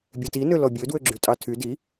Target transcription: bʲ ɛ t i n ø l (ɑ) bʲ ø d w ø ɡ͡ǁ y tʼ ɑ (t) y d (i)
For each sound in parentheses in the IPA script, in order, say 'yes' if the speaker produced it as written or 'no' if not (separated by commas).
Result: no, no, yes